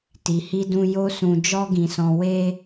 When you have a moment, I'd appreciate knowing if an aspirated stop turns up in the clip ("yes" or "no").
no